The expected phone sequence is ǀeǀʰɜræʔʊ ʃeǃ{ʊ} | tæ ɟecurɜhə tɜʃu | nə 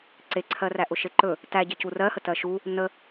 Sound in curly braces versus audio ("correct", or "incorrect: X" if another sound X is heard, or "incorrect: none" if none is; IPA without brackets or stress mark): incorrect: ɵ